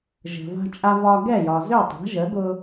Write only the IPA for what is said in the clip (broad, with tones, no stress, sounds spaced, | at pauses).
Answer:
ʒ ə̤˩ v a̤˧ t͡ʃʼ a˧ v ɒ˧ ɡ ɛ˥˩ j ɒ˩ z ø˥˩ tˤ a̤˩˥ ʒ ə˩˥ ɡ ʊ˧